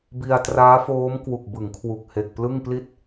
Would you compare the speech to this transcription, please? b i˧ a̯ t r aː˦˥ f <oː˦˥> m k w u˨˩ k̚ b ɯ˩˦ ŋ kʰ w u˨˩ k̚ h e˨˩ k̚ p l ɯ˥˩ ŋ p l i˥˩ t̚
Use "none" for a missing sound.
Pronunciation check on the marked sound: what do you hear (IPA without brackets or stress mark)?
oː˦˥